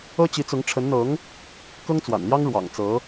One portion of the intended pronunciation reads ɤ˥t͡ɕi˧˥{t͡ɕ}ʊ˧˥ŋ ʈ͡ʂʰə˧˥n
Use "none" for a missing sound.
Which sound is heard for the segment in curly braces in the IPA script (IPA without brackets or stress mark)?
t͡s